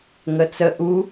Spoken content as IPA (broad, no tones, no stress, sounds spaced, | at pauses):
ŋ ə t͡s ə ʔ u